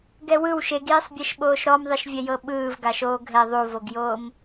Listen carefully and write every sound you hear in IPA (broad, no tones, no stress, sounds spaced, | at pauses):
ɡ ɛ w ɯ w ʃ e ɡ iː sˤ bʲ ɛ ʃ ɓ oː ʃ ɾ ɔ m ðˤ i ʃ vʲ ɛ j ɤ ɓ ɯː v ɡ a ʃ oː ɡʱ ɛ ðˤ u v o ɡ j oː m